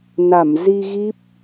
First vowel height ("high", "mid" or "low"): low